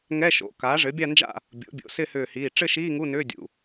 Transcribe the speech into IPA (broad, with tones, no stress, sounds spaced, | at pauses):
ŋ ɛ˧˥˧ ʃ o̰˩˧˩ k aː˩˥ ʐ ɘ˩˥ bʲ a˥˧ n d͡ʒ a̰˥˧ | bʲ o̰˩˥ bʲ o̰˩˧˩ s ɪ˥˧ h ʏː˧˩ h iː˩˧˩ ʈ͡ʂ ɘ˥˧ ʃ iː˧˥˧ ŋ u˧˥˧ n ʏː˧˥˧ dʲ ṵ˩˧˩